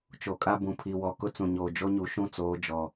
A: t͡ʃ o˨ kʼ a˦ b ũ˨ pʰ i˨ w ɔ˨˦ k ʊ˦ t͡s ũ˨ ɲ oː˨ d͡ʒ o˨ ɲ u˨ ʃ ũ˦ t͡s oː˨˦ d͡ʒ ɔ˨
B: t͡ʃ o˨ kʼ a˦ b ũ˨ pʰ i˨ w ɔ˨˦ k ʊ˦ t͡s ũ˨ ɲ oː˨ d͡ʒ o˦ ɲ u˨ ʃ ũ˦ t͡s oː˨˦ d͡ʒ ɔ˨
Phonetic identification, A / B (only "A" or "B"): B